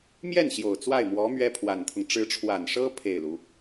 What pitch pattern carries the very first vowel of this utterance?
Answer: falling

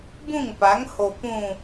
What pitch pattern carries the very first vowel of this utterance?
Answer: falling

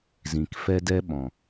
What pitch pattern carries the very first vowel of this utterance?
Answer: low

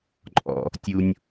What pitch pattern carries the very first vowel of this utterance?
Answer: low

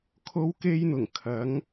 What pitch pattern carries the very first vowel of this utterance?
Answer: high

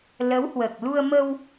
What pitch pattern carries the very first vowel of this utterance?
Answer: rising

